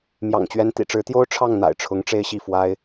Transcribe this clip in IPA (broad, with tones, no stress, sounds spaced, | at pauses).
m j ɑ̰˨˩ ŋ t͡ɕ ɥ ɛ˧˥ n t̪ ḭ˨˩ ʈ͡ʂ ɻ̩˧˥ t̪ j o˥ ʊ̯ ʈ͡ʂʰ ɑ˥˩ ŋ n̪ a̰˨˩ ɪ̯ ʈ͡ʂʰ ʊ˧˥ ŋ ʈ͡ʂ e˥ ɪ̯ ɕ i˥˩ f w a˥ ɪ̯